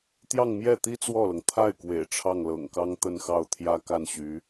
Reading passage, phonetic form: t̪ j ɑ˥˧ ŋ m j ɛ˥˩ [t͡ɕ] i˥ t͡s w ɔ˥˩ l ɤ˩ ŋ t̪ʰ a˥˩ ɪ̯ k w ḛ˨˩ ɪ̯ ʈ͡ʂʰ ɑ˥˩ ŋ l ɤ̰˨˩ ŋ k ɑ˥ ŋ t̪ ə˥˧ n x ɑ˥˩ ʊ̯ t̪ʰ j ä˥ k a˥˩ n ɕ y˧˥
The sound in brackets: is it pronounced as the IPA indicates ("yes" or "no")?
no